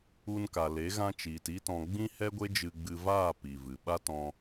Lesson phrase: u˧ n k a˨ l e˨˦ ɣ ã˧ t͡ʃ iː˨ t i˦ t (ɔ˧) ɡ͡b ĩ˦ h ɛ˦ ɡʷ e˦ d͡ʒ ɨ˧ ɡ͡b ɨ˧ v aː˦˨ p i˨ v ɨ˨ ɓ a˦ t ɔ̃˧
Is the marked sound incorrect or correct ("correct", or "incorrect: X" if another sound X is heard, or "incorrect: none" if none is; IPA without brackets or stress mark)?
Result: incorrect: ɔ̃˧